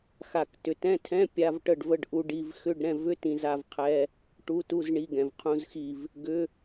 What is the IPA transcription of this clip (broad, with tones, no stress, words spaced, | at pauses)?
xa˨k tʏ˨tɛ̃˧˥˧tʰɛ̃˧˥˧ pʲa˧˥˧vʈə˦˨ɖvə˧˥˧ɖ ʔu˨ɖi˨v xʏ˧˥˧ɖ ɾɛ̃˦˨vʏ˧˥˧tĩ˨ za˦˨vqʰɛ˧˥˧ | ʈu˧˥˧tu˧˥˧z ɳi˧˥˧ɡɛ̃˨vqʰũ˧˥˧zxi˦˨v | ɡʏ˧˥˧